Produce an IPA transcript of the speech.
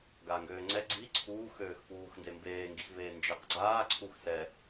ɡ aː ŋ ɡ øː ŋ͡ǀ ɛ ɡ͡ǀ i ǀʰ uː x øː x f uː x n d e m b eː ŋ ɡ i x v eː n d͡ʒ ɛ q ɡ͡ǀ aː ǀʰ u x s ɛ

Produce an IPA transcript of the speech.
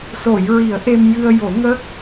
s o˨˩˨ j ɹ i˨˩˦ ə̯ ʔ e˧ m j ɨ˧ ə̯ j o˨˩˦ ŋ ə˦˥ k̚

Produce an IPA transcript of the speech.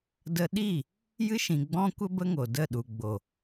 d ə˧ ɗ i˦˨ | j ɨ˦ ʃ ĩ˨ ɡ͡b ɔ̃˦ kʷ ə˦ b ə˦ ŋ o˨ d ə˦˨ ɗ u˨ ɡ͡b o˨

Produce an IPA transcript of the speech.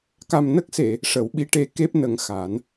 k a˨˩ m n ə˦˥ k̚ s e˨˩˨ | ʂ ə˨˩˦ w ɓ i˧˥ ʈ e˧˥ k e˦˥ p̚ n ə˨˩˦ ŋ x a˨˩˦ n

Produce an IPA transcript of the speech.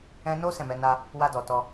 ɛ̃˧ n o˦ s ɛ̃˦˨ m ɛ˨˦ n a˦ | w a˧ d ɔ˨ t ɔ˧

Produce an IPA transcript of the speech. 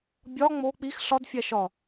bʲ ɒ ŋ͡m o k͡p i x ɬ ɒ d fʲ æ ʃ ɒ

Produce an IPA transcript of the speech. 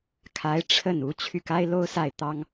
kʰ a˧˥ ɪ̯ ʈ͡ʂʰ ə˥˩ n u˧˥ t͡ɕʰ y˥˩ k a˥ ɪ̯ l o˥ ʊ̯ s a˥˩ ɪ̯ t̪ ɑ˥ ŋ

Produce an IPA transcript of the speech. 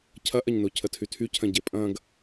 cʰ ɐ ʔ ɐ ɲ n o cʰ ə tʰ y tʰ y cʰ ɐ̃ ɟ e pʼ ɐ̃ ɡ

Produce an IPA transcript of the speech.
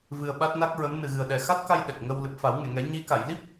v ɨ˧ ə̯ ɓ a˦˥ t̚ n a˦˥ k̚ ɹ ə˧˥ m n ɨ˨˩ ɣ ɨ˨˩ ə̯ ɗ ɛ˨˩ x a˦˥ t̚ k a˧ j ɗ ɛ˨˩ k̚ ŋ ə˧ w l ɨ˨˩ p̚ f a˨˩˦ w ŋ e˨˩˨ ŋ ɛ˨˩˦ ɲ i˧˥ k a˨˩˨ j l i˦˥ p̚

